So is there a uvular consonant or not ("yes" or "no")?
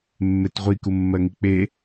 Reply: yes